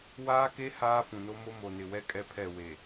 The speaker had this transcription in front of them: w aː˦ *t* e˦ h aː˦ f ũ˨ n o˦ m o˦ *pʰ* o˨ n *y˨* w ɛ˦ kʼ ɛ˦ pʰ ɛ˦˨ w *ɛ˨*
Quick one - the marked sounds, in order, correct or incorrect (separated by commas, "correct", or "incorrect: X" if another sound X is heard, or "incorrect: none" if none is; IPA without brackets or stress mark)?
incorrect: k, incorrect: m, incorrect: ɪ˨, incorrect: e˨